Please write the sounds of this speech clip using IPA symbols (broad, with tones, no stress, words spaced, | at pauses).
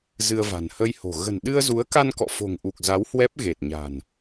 zɨ˧ə̯va̤˨˩n hə˧jho̤˨˩ ɣə̤˨˩nɗɨ˧ə̯zu˨˦ə̯ka˧n kɔ̰˧˨fo̤˨˩ŋʔu˨˩k̚za˨˦w hwɛ˦˥p̚ɣe˨˩t̚ɲa̤˨˩n